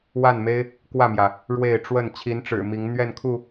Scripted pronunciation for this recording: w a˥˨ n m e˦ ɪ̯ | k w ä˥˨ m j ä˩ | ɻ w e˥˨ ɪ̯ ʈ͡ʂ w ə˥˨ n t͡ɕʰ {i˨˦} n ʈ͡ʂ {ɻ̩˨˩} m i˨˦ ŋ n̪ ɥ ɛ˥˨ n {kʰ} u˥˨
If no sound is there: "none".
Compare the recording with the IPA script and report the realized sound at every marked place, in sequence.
i˨˦, ɻ̩˨˩, kʰ

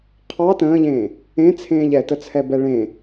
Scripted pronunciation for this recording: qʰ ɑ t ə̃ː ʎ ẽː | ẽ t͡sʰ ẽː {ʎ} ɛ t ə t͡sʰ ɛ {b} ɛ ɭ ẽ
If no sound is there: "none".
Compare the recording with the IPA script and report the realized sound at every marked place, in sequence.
ʎ, b

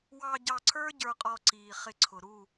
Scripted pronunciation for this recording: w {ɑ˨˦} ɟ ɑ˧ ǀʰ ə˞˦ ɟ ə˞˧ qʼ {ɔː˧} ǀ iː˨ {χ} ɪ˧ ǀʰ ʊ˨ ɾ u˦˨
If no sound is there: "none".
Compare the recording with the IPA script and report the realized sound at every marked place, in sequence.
ɑ˧, ɔ˧, χ

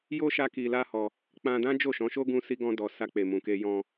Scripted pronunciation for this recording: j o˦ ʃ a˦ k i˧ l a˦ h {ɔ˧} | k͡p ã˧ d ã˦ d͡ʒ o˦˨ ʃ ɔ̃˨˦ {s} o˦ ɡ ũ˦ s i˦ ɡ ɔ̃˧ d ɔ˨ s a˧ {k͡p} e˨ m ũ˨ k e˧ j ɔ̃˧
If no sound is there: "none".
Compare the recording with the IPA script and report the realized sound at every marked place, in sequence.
ɔ˧, ʃ, k͡p

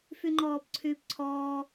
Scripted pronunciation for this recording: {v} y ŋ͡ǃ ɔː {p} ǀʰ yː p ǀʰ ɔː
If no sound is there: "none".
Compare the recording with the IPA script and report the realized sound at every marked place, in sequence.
f, p

